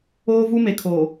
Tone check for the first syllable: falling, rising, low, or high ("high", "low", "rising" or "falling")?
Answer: high